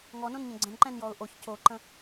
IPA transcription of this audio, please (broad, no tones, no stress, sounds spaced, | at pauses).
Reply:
ŋ ɔ n õ n ɲ ə̃ ɡ͡ǀ ə̃ n ǃ ɛ̃ n j ɔ ʊ̯ ʔ o ç c o ǃ ə̃